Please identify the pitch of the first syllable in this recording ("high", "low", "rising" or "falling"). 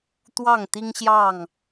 falling